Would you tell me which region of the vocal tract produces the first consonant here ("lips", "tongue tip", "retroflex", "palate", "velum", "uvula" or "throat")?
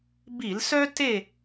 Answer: lips